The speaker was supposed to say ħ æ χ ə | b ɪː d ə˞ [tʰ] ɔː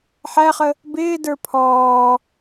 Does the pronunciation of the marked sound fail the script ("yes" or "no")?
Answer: yes